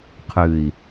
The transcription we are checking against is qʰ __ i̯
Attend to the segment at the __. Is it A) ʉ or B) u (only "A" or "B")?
A